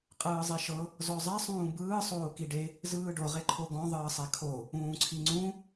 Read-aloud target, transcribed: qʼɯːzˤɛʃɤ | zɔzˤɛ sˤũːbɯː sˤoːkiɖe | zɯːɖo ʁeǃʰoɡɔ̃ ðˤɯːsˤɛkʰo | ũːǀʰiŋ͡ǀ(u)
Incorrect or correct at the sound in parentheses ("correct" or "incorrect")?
incorrect